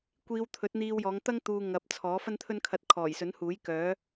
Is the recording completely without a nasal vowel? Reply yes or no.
yes